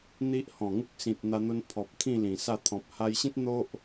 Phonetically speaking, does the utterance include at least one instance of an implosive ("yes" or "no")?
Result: no